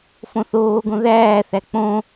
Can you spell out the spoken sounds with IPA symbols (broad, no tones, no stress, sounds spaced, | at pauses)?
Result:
f õ θ oː ɡ õ ð æː θ æ k͡p õ